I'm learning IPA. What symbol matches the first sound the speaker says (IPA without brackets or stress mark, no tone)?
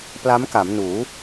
p